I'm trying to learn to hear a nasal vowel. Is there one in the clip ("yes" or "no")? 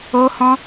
yes